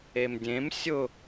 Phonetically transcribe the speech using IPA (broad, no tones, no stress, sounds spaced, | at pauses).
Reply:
e m dʲ ẽ m sʲ ʊ